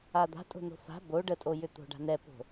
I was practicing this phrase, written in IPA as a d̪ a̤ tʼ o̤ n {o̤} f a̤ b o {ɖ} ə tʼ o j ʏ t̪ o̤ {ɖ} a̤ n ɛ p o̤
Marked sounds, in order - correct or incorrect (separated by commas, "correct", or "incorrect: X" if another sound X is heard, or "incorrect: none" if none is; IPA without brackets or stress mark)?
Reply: correct, correct, correct